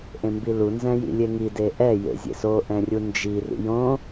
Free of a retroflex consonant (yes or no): yes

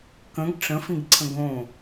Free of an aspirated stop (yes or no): no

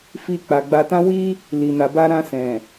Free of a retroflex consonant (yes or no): yes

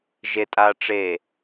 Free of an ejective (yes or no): no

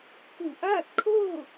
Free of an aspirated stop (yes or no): no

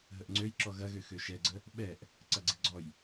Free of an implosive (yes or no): no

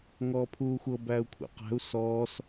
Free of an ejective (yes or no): yes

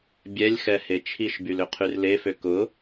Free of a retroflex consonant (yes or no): yes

